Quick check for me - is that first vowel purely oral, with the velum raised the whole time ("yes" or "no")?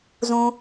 no